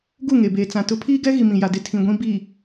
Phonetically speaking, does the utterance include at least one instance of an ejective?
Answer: no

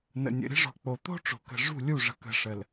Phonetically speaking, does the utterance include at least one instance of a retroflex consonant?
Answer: yes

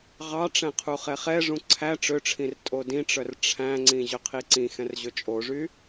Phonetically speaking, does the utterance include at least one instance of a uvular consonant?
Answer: yes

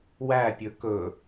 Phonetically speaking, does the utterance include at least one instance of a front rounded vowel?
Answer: no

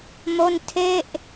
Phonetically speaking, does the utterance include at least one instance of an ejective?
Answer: no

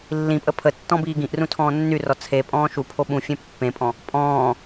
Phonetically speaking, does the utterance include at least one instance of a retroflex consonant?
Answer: no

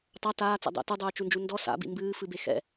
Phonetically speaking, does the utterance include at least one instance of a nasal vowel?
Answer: no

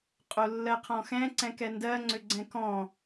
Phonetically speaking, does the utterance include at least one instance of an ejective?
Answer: yes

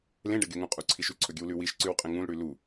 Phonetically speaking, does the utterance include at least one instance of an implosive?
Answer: no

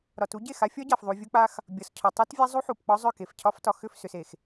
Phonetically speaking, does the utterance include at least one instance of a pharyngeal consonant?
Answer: yes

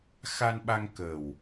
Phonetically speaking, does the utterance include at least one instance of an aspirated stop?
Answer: no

